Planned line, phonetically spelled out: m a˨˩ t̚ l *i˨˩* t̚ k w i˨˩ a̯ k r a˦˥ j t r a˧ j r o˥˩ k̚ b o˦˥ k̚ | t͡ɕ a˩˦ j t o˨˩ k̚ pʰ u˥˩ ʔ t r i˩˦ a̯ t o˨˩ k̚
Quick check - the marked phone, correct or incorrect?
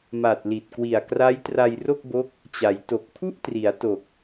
correct